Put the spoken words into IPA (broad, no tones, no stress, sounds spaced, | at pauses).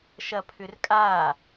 ʃ ɐ pʰ ʏ r kʼ a